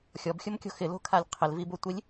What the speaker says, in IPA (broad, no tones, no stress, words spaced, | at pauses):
xʲɔbxʲʊmkʲo̤ xɪlo̤kʰalʲ qʰɪlvibotʷilʲ